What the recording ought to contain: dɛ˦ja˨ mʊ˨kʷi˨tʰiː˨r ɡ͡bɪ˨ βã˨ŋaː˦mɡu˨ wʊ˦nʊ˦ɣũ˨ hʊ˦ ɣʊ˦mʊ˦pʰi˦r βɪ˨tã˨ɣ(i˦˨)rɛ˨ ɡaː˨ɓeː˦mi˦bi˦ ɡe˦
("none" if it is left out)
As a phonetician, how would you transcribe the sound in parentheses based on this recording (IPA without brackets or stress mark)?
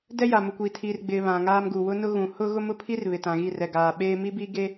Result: i˦˨